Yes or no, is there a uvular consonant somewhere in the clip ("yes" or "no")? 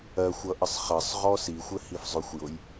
yes